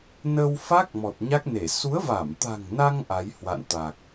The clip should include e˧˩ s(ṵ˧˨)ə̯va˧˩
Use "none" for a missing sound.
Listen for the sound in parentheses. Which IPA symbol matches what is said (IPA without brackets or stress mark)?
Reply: u˨˦